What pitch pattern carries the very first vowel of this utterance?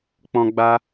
low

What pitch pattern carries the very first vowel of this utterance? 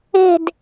falling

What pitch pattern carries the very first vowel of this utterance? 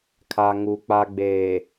low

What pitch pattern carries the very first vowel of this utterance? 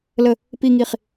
low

